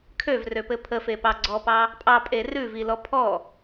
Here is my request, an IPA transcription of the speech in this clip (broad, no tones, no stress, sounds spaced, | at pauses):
kʰ ø v r ø p ɘ pʰ ə f e p ɑ ɡ͡ǀ ɔ p ɑ | pʼ ɑ pʼ e r ʉ v i l ɔ pʰ ɔ